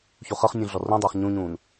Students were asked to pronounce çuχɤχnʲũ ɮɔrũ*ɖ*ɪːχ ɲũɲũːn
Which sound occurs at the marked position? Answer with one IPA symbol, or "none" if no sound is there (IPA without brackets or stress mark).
dˤ